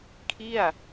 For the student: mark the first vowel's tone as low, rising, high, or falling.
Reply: falling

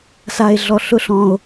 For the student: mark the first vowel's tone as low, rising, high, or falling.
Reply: low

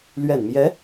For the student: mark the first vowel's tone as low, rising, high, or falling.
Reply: low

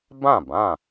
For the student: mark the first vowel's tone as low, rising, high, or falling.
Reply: falling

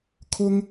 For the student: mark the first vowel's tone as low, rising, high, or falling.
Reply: high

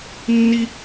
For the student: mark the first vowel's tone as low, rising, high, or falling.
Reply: high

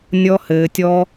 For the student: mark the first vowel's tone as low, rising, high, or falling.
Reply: high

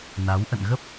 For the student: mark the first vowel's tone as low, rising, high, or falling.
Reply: rising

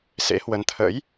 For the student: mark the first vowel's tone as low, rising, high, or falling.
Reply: rising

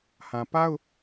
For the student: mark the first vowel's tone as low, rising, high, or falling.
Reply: low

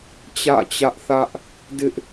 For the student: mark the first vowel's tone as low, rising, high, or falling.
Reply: falling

